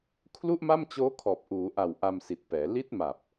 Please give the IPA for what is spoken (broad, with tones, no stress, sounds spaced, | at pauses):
kʰ l u˥˩ ʔ m a˥˩ m t͡ɕ oː˦˥ kʰ ɔː˨˩ p̚ ʔ uː˩˦ ʔ a˨˩ w ʔ a˧ m s i˨˩ t̚ p ɛː˩˦ l i˦˥ t̚ m a˨˩ p̚